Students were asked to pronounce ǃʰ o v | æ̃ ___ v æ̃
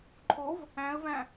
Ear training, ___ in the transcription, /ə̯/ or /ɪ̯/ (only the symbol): ə̯